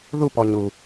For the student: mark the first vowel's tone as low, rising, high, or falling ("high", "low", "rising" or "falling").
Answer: falling